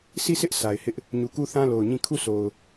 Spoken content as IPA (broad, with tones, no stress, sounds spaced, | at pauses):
sʰ i˦˨ sʰ ɪ˦ ʔ s a˨ ɪ̯ h ɪ˦ ʔ | ɲ u˨ k u˦ θ ã˦ l o˨ ʊ̯ ɲ ĩ˦˨ kʰ u˦˨ s o˨ ʊ̯